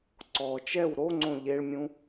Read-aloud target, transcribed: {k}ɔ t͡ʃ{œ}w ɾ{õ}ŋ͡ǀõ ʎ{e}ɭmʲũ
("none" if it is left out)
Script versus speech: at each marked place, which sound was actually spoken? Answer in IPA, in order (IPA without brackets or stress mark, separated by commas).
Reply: ǀ, ɛ, o, e